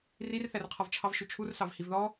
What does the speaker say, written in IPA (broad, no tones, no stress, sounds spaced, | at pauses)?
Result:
r i r θ æ r qʰ ɒ v t͡ʃʰ ɑ v ʃ u t͡ʃʰ u r s ɑ v h i v ð ɔ